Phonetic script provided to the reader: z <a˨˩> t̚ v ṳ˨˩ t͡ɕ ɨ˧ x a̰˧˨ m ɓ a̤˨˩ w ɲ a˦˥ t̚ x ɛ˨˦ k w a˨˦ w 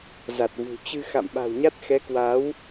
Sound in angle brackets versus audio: correct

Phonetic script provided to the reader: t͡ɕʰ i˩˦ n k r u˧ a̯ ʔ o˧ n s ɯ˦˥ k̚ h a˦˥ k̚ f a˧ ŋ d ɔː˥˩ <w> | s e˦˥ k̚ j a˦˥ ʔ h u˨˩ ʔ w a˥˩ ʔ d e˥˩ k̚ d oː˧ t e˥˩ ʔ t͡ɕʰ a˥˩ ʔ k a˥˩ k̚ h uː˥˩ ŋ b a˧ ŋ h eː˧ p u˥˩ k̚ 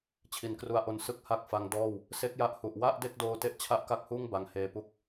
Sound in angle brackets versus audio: correct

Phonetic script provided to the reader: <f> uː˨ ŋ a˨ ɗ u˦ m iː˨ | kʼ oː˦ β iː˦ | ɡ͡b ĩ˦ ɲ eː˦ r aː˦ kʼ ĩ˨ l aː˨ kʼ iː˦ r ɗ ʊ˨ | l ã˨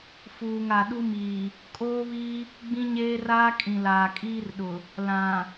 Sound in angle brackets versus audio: correct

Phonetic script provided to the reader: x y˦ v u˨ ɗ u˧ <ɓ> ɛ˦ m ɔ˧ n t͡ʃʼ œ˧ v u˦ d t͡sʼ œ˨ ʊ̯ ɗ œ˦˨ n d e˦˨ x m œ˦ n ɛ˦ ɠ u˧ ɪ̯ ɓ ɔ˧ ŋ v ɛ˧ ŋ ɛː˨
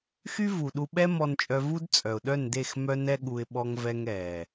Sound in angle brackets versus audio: correct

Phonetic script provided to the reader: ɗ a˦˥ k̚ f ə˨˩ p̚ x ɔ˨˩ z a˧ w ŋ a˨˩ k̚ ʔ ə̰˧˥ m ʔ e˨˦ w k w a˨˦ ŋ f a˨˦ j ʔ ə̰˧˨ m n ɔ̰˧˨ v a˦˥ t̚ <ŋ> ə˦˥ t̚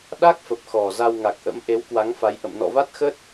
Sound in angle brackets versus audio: incorrect: x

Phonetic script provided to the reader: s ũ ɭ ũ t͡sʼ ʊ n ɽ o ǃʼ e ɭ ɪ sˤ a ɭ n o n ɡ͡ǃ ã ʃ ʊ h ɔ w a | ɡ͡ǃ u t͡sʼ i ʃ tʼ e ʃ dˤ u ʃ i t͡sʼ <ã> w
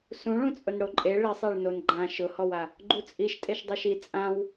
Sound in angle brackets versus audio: correct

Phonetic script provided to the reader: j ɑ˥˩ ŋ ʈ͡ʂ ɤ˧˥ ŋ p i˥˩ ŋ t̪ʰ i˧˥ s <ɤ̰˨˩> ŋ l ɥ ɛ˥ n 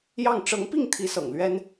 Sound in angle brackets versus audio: correct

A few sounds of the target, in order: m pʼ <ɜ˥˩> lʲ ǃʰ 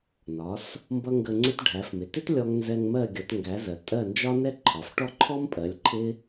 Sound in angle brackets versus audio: incorrect: ɜ˩˥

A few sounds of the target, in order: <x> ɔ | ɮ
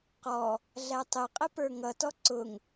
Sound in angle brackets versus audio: incorrect: q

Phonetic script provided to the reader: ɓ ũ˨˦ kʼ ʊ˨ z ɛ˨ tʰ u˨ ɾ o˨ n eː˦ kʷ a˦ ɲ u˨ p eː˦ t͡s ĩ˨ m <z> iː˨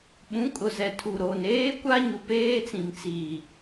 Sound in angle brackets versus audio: incorrect: t͡s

